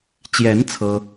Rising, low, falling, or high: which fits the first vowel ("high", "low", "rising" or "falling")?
rising